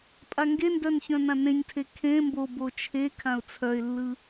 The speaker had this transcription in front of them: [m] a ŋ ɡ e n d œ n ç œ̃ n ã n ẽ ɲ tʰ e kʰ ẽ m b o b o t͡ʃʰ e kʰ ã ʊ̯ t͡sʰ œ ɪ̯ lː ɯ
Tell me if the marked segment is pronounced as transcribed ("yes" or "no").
no